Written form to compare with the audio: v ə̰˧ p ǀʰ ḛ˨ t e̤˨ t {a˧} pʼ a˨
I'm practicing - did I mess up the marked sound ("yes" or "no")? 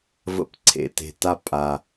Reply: no